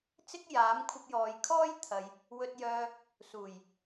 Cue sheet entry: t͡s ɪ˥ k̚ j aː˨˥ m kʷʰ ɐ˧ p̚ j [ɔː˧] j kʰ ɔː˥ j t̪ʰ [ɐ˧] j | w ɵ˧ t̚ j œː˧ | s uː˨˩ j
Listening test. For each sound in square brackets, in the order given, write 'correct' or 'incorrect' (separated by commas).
incorrect, incorrect